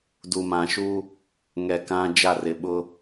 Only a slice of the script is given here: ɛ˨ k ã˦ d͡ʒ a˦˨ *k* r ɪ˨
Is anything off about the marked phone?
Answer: yes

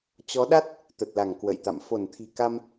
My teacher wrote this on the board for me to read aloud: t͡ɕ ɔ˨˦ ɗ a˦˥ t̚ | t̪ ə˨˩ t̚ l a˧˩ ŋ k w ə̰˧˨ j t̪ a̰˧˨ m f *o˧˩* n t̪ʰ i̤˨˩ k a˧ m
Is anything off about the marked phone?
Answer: no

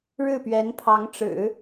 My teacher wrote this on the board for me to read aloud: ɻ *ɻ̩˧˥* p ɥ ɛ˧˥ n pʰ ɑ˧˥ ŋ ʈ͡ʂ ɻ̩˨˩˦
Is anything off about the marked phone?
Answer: yes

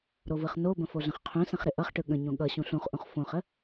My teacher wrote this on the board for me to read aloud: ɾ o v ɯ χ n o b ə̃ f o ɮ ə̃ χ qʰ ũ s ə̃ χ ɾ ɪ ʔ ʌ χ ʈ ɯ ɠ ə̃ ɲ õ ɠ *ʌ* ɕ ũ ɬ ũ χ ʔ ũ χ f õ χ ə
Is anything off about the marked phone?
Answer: no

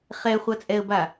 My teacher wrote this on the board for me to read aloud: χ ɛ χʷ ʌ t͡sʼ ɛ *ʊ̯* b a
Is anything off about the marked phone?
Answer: yes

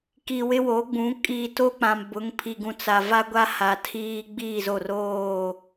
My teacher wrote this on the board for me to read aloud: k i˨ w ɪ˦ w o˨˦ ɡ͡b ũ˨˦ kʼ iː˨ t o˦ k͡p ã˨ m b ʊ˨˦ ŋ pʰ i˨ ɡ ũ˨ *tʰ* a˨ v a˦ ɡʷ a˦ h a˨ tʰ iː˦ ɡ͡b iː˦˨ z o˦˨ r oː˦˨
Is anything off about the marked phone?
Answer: yes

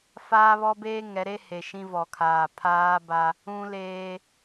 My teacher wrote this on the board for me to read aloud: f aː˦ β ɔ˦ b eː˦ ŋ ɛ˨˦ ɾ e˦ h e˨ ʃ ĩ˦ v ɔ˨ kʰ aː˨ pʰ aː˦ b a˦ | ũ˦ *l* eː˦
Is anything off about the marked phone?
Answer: no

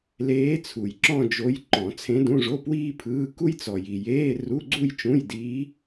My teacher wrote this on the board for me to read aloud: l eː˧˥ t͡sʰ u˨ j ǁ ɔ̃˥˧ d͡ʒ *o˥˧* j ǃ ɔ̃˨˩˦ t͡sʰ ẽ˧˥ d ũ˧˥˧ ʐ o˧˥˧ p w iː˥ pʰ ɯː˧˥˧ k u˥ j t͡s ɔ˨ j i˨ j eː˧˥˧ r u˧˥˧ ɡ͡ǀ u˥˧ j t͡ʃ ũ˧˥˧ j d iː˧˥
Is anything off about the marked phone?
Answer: yes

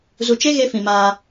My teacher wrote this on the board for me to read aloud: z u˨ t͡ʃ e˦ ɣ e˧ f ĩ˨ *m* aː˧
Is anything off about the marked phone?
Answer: no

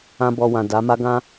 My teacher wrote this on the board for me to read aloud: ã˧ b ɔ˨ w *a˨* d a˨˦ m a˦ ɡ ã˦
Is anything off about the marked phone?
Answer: yes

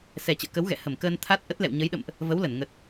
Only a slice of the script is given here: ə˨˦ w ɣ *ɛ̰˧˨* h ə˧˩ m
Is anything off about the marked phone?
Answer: no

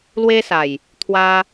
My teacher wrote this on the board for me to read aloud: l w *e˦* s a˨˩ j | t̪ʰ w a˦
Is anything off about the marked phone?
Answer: no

